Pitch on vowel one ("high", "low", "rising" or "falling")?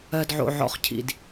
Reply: low